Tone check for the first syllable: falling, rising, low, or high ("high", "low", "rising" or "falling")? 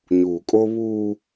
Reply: low